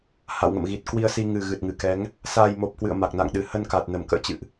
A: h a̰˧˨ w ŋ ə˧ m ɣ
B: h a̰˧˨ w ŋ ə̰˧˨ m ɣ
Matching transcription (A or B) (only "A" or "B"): B